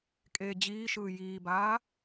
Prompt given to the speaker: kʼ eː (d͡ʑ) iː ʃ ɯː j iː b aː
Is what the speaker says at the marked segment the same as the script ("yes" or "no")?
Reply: yes